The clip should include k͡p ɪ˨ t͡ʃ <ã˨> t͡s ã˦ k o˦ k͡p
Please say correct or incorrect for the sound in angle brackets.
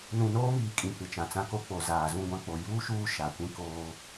correct